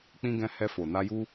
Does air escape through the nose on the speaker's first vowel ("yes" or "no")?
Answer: yes